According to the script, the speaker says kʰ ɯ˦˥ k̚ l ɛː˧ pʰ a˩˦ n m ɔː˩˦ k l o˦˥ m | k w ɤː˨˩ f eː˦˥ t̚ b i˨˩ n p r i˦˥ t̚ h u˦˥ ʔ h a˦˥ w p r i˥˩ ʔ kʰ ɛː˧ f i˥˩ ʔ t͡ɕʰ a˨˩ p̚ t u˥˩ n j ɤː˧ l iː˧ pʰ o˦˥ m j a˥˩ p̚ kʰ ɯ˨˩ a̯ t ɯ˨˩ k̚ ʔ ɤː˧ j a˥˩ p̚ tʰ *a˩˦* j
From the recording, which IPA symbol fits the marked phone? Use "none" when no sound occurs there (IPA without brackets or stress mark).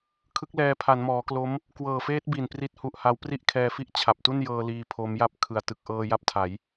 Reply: a˩˦